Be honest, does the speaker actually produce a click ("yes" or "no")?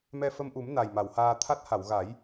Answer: no